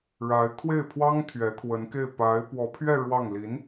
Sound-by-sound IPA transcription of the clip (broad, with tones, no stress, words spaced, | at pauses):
ɻa˧˥ɪ̯ kʰwe˥˩ɪ̯pʰwɑ˥ŋ t̪ʰɥɛ˧˥kʰwə˧˥nke˥˩ɪ̯ pa˧˥ɪ̯ pwɔ˧˥pʰɥɛ˥˧ ɻwɑ˥˩ŋ li˧˥n